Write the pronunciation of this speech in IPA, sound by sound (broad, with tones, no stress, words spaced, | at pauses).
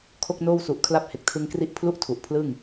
kʰo˥˩k̚noː˥˩wsu˨˩ʔ kʰla˦˥p̚he˨˩k̚tʰɯ˧ŋkri˥˩ʔ pʰlu˥˩ʔtʰu˨˩ʔ pʰlɯ˥˩ŋ